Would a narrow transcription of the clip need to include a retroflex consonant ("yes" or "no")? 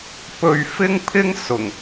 no